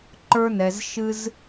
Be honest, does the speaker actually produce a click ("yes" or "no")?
yes